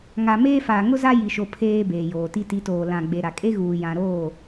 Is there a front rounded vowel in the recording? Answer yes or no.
no